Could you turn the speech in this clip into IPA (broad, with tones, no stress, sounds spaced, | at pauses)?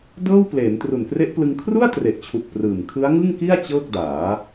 d ɤː˥˩ w p l eː˩˦ n t r u˨˩ n k r e˦˥ ʔ p l ɯ˧ ŋ kʰ r u˥˩ a̯ t r e˨˩ ʔ t͡ɕʰ u˨˩ k̚ p r ɯː˨˩ m kʰ ɯ˦˥ a̯ ŋ ɯ˥˩ ŋ k i˥˩ a̯ t͡ɕ ɤː˥˩ k̚ d aː˩˦